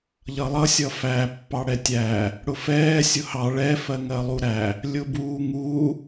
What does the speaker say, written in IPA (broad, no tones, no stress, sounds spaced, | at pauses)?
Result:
ʎ ʌ lˠ ʌ sʲ ʌ f æ pː ɑ ɽ ɛ tʲ æ | ɽ ʊ f ɛː sʲ ʊ h ɑ ɭ ɛ f ɜ ŋ ɜ lˠ u ɾ æ | lʲ ʊ b uː ŋ u